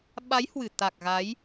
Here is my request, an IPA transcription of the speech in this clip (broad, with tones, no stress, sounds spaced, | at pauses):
ɓ a˨˦ j h w ɨ˧˩ t̪ a˨˩ k̚ ɣ a˨˦ j